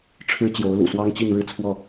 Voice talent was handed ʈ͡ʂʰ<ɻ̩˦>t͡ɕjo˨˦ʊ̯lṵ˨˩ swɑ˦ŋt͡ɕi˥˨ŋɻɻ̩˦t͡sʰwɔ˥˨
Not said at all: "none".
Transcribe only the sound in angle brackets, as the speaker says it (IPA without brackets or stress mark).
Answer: ɻ̩˦